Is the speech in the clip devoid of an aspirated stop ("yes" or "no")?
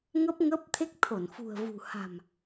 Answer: no